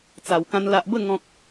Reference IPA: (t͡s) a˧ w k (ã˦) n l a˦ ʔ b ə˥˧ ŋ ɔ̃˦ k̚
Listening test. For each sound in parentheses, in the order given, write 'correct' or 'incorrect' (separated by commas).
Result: correct, correct